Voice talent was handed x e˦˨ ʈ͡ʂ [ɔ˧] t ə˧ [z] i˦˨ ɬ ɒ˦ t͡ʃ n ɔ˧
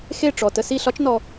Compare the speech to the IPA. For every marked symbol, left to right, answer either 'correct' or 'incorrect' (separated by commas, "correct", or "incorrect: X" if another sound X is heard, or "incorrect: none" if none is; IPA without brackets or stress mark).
incorrect: ɔ˨, incorrect: s